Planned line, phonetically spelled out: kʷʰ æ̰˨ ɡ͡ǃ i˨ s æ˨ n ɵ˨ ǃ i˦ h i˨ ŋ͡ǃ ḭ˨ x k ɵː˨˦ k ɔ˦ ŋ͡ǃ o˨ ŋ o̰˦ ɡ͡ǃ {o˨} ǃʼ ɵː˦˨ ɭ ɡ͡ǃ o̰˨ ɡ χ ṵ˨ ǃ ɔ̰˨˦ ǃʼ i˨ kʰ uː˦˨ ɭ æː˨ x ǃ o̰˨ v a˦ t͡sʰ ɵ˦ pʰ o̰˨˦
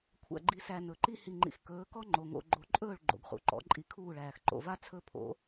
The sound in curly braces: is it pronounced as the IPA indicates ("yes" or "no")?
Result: no